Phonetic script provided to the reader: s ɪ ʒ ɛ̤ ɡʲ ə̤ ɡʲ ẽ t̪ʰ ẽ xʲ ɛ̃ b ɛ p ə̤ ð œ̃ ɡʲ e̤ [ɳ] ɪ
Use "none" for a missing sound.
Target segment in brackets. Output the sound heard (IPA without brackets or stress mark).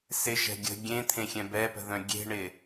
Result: ɳ